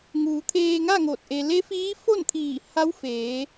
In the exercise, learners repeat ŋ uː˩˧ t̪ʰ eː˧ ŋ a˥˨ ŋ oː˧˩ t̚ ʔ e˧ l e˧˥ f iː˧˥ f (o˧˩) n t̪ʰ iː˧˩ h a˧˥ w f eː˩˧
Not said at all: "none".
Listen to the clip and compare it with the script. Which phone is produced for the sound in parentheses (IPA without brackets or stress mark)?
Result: o˥˨